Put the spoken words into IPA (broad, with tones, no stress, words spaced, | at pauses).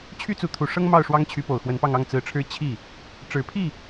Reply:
t͡ɕʰy˥˩t͡su˧˥t̪ʰu˨˩ʂɤ˥ŋ mɑ˥˩ʊ̯ʂwɑ˥ŋt͡ɕʰy˧˥ po˨˩ʊ̯xwə˧˥npɑ˥˧ŋɑ˥˩ŋ t͡sɹ̩˧˥ʈ͡ʂʰɻ̩˥˧ t͡ɕʰi˥˩ | ʈ͡ʂɻ̩˨˩pʰi˥˩